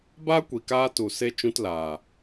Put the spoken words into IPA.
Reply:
baː˦kʷi˨kaː˧ tu˨se˧ t͡ʃũ˧tlaː˨

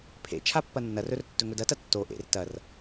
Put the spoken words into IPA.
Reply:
pʰḛ t͡ʃʰapːɐnːɐrɵr tːɵŋɵdɐtɐ tːo ʔḛr tɐr

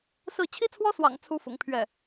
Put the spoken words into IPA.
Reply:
sɹ̩˥˩ t͡ɕʰi˥t͡sʰwɔ˥swɑ̰˨˩ŋ t͡sʰu˥fʊ̰˨˩ŋpʰɥɛ˥˩

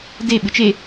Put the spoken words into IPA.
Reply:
de ɓɨt͡ʃe

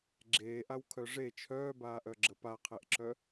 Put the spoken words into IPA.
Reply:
ɡ͡ǁeːʔawkʰœ ʐe t͡ʃʰœːbaːʔœɡ͡ǁə paqʰeʔǁœ

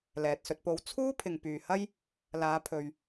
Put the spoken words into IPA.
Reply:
lɛː˨t̚sɵ˧t̚po˧w t͡sʰuː˥ pʰɪ˨ŋpyː˨hɐ˥j | laː˨˧pʰɵ˨ɥ

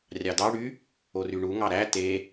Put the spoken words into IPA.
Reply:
rʲɑdɑ ɽy | oryɳu ŋɑɾæ te

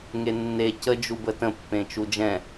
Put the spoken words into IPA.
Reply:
ŋenːe cə d͡ʒubətə̃ pːẽt͡ʃud͡ʒɛ̃

